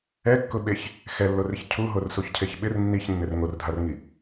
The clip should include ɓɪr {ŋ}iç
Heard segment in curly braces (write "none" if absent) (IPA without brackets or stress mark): nː